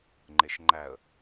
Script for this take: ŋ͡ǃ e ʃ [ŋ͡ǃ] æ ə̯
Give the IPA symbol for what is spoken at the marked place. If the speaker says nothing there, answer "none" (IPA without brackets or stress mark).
ŋ͡ǃ